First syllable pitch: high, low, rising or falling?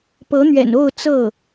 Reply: rising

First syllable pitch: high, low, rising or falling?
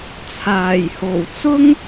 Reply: low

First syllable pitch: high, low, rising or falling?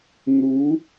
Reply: rising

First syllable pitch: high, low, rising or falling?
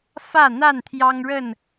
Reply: falling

